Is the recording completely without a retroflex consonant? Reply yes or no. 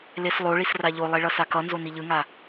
no